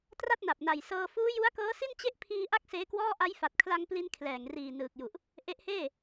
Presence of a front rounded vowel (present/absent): absent